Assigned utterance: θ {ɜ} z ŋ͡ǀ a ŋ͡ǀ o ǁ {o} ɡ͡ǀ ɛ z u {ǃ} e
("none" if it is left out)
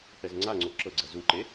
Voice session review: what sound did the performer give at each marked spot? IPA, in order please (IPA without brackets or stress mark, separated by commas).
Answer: ɛ, ɤ, ǃ